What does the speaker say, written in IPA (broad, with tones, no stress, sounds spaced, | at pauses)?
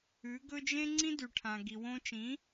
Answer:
ʉ˩˥ ɡ ɵ˥ d͡ʒ ẽ˥ ŋ͡ǀ ĩ˥ d ʉ˩ ʈʰ ã˩ ɡ i˩ w õ˧ t͡ʃ ĩ˩˥